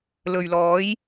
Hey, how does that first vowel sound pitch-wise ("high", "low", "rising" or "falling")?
low